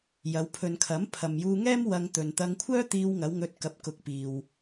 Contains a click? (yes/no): no